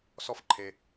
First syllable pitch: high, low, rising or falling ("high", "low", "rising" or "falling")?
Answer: high